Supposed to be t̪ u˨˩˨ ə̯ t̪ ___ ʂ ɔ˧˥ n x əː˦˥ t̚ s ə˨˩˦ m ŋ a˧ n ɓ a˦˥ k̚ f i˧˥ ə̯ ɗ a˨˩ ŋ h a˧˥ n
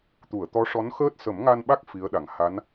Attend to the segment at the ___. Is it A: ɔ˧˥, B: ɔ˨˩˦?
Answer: A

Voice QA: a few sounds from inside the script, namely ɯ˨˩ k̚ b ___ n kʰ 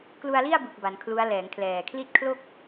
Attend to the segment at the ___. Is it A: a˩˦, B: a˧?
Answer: A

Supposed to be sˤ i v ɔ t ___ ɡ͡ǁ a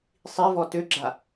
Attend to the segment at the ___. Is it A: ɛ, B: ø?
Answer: B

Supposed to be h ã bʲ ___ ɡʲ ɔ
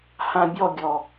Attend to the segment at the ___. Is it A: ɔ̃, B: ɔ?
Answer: B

